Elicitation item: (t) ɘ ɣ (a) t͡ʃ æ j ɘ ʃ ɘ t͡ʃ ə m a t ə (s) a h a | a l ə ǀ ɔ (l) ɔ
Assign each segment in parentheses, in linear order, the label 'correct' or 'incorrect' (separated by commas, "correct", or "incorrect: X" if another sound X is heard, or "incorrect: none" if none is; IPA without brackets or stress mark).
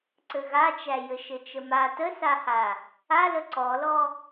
incorrect: ǀ, correct, correct, correct